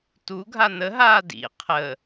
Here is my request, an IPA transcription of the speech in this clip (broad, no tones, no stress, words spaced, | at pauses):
tu ɡʱanəɦaː dḭ qʰə